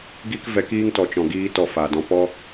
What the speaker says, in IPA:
ɡ i˦ k v ɛ˧ k iː˦ ŋ t ɔ˨ t͡ʃ ɔ̃˨ ɡ iː˧ t ɔ˧ f a˨ d ɔ̃˦ p ɔ˦

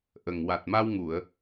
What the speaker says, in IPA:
ʔ ə˨˩ ŋ w a˨˩ t̚ m a˧ w ŋ u˨˩˨ ə̯

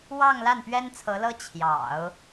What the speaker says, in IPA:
w ɑ˥˧ ŋ l a˥˩ n p ɥ ɛ˥ n t͡sʰ ɤ˧˥ l ɤ˥ t͡ɕʰ j ɑ̰˨˩˦ ʊ̯

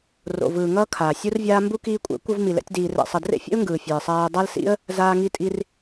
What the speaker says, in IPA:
r o̰˨ v ɯː˨ ŋ ʌː˧ kʰ aː˨ sʲ u˦ r vʲ aː˦ m b u˦ k iː˧ kʷʼ ɛ̰˨˦ kʷ ʌ˧ v m i˨ l ɛ̰˧ tʲ d iː˧ r ɛ̰˧ sˤ ʌ˧ d r ḛ˦ fʲ ḛ˦ ʊ̯ ŋ ɡ ɯː˨ fʲ ɛ˨ ɪ̯ sˤ aː˧ ə̯ dˤ a˦ l s ḭ˦ ə̯ | z aː˧ ŋ i˧ tʼ i˧ r

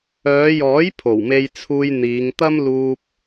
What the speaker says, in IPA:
œː˨˧ j ɔː˨˥ j pʰ o˨˩ w m e˧ j t͡sʰ uː˧ j n̪ iː˨˧ ŋ t̪ ɐ˥ m l uː˧ p̚

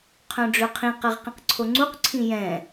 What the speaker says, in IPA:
qʰ œ̃ ɖ͡ʐ ø qʰ ĩ q ɛ ʁ q ĩ q ǀʰ o ŋ͡ǀ u q ǀʰ ĩ j ɛ̃

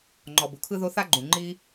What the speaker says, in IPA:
ŋ͡ǃ ɔ˨ b u˨ kʰ ɯ˦ ð o˦ θ a˦ ɡ͡ǃ ũ˨ ŋ͡ǃ i˦

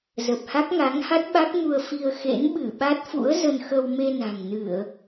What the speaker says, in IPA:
z ə˨˩ p̚ h a˦˥ k̚ ŋ a˨˦ ŋ h a˦˥ t̚ ɓ a˦˥ k̚ m u˧ ə̯ f i˧ ə̯ x ḛ˧˥ n ɓ ɨ˧˩ ɓ a˦˥ t̚ f ṵ˧˥ ə̯ z ə˧ n x ə˧ w m e˧ n a̤˨˩ ŋ n ɨ˧˩˨ ə̯

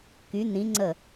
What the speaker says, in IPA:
k y˩˧ n̪ ĩ˩˧ ŋ͡ǀ ə˧˩

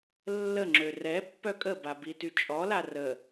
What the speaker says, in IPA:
lː ə ŋ͡ǁ ø r ɛ pː œ kʼ ə b a b i t y t͡ʃʼ ɔ l a r ə

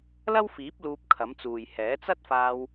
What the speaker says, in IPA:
l ɐ˥ w f iː˨˥ p̚ l uː˧ p̚ kʰ ɐ˨˥ m t͡s uː˨ j h ɛː˨˥ t͡s ɐ˥ t̚ f aː˧ w

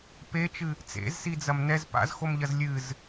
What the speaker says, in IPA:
p e t͡ʃ ɨ | t͡s ḛ z s i d͡z ɐ m n ɛ z p a̰ z x o m ʎ ɐ z lʲ ɨ z

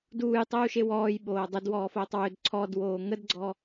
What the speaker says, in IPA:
d uː j tˤ uː ʃ e w ɔː j ɓ oː dˤ e d w ɔː f oː tˤ w ø d ǀʰ ɔ d w oː ŋ ə d ɡ͡ǀ ɔ

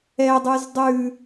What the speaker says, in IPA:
ɛ dˤ ʉ z dˤ ʉ

